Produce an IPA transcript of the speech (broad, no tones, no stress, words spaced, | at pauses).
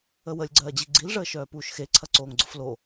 əwəlʲɡ͡ǀɜːd͡ʑi ɡ͡ǀilʐəːʃœː puːʃxe ǀʰɐǀoːŋɡ͡ǀʊflo